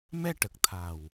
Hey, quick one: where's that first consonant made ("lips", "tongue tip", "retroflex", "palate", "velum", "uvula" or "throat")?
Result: lips